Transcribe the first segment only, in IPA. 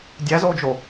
dʲ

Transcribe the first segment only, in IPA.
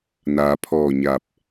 n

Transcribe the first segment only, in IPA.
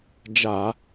d͡ʒ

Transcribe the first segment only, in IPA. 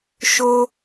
ʃ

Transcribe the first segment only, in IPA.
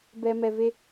b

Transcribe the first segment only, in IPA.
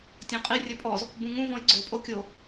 tʲ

